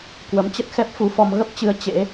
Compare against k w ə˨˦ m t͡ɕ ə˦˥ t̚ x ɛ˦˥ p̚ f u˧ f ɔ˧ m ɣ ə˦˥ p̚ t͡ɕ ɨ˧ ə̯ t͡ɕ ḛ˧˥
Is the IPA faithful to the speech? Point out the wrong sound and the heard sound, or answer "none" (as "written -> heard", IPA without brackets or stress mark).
none